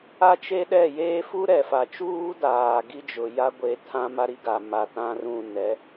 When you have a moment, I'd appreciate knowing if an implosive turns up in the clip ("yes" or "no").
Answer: yes